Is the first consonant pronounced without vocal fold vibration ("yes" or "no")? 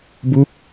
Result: no